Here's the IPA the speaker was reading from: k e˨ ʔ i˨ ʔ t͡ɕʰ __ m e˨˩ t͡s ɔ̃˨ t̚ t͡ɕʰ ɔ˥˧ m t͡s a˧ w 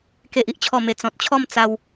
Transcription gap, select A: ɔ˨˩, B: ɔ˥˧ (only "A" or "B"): A